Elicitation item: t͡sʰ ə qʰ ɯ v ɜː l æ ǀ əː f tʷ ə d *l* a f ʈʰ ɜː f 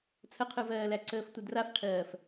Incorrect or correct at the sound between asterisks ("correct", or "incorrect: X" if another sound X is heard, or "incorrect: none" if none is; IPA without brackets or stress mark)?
incorrect: r